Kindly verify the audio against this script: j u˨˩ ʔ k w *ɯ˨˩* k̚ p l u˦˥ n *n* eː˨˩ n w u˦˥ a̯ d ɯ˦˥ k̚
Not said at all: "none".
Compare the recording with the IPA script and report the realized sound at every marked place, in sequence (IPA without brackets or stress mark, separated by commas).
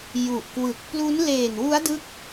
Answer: ɯ˨˩, l